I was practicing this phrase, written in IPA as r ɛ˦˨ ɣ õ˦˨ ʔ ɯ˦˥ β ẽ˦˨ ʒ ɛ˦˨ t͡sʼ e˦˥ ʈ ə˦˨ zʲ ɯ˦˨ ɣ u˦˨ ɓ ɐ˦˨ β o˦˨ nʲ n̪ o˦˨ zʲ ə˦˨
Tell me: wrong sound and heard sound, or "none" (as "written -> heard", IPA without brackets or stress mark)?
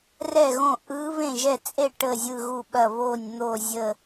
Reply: e˦˥ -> e˦˨